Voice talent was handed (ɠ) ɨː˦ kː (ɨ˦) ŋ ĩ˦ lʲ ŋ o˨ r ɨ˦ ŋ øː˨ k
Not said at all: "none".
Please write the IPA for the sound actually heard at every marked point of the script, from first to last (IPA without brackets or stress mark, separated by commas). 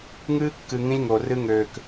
ŋ, ɨ˨